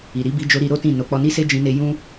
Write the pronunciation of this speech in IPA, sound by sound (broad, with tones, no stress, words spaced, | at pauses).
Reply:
i˨ɾi˨˦bi˧d͡ʒo˧ ɾi˧ɾo˦tĩ˦˨ no˨˦k͡pɔ˧ni˦se˦ d͡ʒĩ˧ne˧ jũ˦